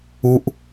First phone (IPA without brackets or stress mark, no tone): u